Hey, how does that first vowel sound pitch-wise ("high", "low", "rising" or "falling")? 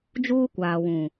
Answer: high